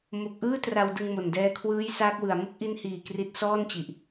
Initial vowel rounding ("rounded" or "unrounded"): rounded